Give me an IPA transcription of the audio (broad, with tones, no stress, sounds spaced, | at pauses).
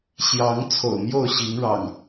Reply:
ɕ j ɑ˨˦ ŋ t͡sʰ o̰˨˩ ʊ̯ m j o˥˨ ʊ̯ ɕ i˨˦ ŋ ɻ ɑ̰˨˩ ŋ